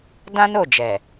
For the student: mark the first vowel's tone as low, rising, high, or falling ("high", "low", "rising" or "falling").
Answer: high